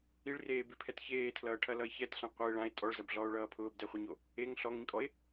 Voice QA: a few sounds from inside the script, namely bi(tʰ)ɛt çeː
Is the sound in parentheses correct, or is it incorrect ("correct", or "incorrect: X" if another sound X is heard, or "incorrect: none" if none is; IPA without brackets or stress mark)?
incorrect: pʰ